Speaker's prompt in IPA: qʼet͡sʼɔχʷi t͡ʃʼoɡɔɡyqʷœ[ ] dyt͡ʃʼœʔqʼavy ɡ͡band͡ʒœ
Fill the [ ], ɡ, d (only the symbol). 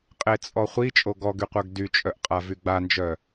ɡ